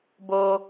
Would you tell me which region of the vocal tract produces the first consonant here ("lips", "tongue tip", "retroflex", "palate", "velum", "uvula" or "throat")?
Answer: lips